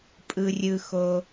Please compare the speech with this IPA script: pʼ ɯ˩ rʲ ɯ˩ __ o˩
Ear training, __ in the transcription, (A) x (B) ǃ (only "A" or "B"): A